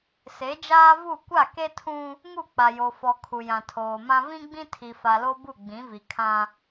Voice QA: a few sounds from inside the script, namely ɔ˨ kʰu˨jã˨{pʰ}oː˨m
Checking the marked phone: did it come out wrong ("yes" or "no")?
yes